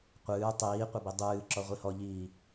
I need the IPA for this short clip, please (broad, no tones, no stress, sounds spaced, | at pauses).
qʷ ɨː tˤ iː qʷ ɐ b i dˤ ɨː ǁ ɔ ʁʷ i h ɔ ʎ iː